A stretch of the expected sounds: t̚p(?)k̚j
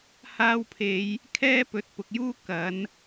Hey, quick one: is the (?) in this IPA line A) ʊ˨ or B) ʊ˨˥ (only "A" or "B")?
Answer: A